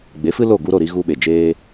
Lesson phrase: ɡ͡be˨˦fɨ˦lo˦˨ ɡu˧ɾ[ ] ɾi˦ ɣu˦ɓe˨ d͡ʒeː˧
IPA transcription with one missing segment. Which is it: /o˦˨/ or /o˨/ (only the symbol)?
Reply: o˦˨